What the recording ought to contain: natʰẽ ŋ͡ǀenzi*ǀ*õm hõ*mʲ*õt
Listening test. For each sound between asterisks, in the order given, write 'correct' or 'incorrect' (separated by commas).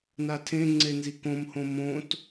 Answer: incorrect, incorrect